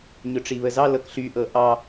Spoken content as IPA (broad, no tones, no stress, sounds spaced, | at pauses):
ɲ ʊ ʈ͡ʂ i β ə z ɑ l ɤ k ɬ y ʔ ɤ ʔ ɑ